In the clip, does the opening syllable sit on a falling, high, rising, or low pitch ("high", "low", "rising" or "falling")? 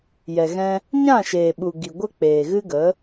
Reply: low